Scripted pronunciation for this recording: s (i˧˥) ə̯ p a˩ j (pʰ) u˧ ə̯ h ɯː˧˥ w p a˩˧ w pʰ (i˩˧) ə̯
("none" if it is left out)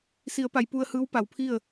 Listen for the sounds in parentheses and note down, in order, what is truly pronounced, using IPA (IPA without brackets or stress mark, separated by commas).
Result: i˩˧, p, i˥˨